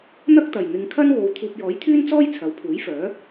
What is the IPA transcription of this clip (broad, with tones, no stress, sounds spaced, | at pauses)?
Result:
n̪ ɐ˥ k̚ t̪ ɐ˨˩ j n̪ ɪ˨˧ ŋ kʰ ɐ˥ n w o˨ w t̪ʰ uː˨ p̚ j ɔː˨˥ j t̪ʰ yː˥ n t͡s ɔː˥ j t͡sʰ ɐ˨˥ w pʰ uː˨˥ j f œː˨˥